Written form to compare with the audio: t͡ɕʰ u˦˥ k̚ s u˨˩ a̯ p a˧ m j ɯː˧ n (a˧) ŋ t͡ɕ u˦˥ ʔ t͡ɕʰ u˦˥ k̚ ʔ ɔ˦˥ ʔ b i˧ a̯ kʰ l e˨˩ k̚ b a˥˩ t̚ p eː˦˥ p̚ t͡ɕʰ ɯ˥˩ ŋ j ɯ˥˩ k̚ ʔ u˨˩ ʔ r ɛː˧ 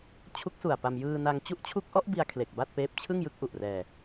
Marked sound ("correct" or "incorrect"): correct